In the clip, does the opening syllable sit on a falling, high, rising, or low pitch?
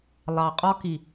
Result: low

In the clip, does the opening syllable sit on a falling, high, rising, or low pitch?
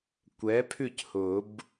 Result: rising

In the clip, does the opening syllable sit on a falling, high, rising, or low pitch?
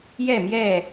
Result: falling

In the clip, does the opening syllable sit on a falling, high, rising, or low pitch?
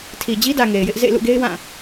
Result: low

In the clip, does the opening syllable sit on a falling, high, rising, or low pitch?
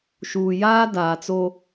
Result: low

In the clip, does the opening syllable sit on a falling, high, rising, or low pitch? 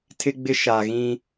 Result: high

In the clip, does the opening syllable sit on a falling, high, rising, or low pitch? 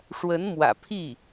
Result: rising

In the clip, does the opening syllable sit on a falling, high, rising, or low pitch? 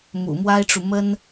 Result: low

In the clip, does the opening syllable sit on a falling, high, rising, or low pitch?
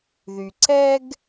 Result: low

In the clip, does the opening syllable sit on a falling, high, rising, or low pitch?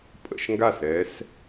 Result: falling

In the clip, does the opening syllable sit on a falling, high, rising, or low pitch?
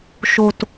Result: low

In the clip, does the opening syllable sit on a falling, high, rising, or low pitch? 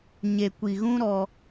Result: low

